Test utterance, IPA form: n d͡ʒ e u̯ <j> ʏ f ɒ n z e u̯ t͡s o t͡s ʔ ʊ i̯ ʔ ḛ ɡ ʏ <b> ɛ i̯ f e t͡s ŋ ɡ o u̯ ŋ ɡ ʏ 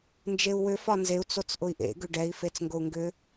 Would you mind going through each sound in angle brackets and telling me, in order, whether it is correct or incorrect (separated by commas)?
incorrect, incorrect